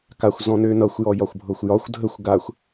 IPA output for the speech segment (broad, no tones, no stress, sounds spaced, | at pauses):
k a xʷ z ɔ̃ n ø n ʌ xʷ j ɔ j ɒ xʷ bʱ ɤ xʷ j ɒ xʷ dʱ ə xʷ ɡ a xʷ